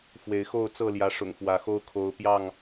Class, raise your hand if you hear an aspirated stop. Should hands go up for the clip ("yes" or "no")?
yes